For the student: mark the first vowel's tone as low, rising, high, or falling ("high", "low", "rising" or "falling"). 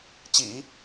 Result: low